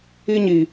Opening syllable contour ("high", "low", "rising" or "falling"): high